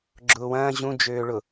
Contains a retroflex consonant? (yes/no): yes